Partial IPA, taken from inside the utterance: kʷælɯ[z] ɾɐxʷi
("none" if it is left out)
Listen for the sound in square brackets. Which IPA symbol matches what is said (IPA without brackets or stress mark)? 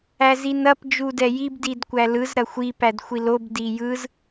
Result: z